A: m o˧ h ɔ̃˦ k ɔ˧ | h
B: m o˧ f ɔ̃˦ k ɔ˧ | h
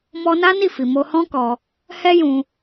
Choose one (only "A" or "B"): A